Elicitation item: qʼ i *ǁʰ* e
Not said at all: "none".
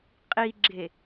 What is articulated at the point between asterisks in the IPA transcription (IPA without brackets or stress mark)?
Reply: ɡ͡ǁ